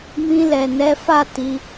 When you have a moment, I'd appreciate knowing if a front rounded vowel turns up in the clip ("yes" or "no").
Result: no